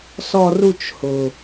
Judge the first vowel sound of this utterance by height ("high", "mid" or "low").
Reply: mid